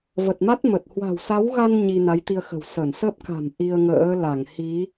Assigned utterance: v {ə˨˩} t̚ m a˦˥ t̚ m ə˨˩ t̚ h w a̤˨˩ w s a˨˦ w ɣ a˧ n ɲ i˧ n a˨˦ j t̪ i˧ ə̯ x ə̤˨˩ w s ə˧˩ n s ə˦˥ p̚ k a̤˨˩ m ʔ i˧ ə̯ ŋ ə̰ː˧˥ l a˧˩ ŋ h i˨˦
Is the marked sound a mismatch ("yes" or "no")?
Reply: no